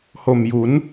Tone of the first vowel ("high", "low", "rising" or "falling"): low